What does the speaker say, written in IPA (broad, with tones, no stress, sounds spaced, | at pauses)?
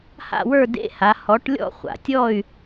h a̰˥˨ w ə˞˥˨ d ḛ˧˥˧ h a˩˥ h ɔ˩˥ ʈ lʲ ɔ̰˥˨ χʷ a̰˨ tʲ ɔ˥˨ y̯